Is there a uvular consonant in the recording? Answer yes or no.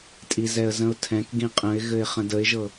yes